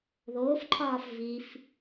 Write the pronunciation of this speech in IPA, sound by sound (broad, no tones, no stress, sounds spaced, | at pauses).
ð oː f ǃʰ ɒː f v i f